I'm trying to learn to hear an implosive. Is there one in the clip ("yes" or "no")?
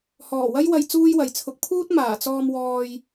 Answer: no